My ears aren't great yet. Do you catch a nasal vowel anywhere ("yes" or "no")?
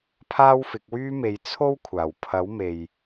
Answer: no